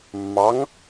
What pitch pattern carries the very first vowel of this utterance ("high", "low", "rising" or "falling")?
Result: rising